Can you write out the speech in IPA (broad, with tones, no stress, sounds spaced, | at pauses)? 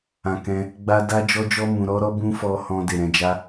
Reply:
ã˧ k ɛ̃˧ | ɡ͡b a˦ d a˦ d͡ʒ ɔ˦ d͡ʒ ɔ˦ m ũ˧ ɾ ɔ˦ ɾ ɔ˦ b ũ˦ f ɔ˧ h ɔ̃˧ d e˨ ɾ ɛ̃˧ d͡ʒ a˦